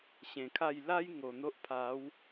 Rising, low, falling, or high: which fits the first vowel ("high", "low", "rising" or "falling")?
low